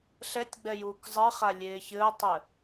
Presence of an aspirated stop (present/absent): absent